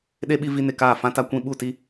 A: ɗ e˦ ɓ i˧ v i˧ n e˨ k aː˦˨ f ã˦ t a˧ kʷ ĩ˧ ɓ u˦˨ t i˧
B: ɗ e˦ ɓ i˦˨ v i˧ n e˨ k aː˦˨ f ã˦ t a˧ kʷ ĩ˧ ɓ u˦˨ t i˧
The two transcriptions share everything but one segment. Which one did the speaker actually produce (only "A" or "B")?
A